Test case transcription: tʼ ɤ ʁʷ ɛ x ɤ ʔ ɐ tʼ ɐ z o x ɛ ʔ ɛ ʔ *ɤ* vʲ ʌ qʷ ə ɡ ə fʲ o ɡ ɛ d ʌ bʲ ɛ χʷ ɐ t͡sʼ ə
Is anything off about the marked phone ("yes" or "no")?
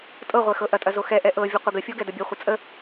no